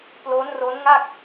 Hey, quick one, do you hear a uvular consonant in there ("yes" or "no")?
no